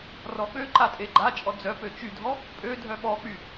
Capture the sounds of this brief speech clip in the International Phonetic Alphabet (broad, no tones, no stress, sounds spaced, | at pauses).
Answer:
r ɔ ɓ ø ǃ a tʼ e ɡ͡ǃ a t͡ʃʼ ɔ d͡z œ p ø t͡ʃ y dʱ ɔ | pʼ ø dʱ œ ɓ ɔ k͡p y